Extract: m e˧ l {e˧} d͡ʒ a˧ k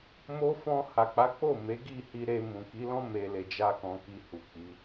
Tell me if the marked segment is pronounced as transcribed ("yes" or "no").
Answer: no